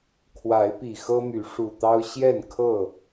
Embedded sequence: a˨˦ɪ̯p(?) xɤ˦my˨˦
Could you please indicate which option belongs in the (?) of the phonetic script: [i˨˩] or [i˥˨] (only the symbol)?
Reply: i˨˩